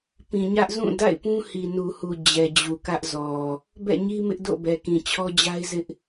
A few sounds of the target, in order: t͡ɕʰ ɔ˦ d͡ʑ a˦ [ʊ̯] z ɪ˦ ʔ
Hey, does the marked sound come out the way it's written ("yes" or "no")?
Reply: no